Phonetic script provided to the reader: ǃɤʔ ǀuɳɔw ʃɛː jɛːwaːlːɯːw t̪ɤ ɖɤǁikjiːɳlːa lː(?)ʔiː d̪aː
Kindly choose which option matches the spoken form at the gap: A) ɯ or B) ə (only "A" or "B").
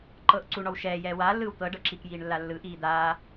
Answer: A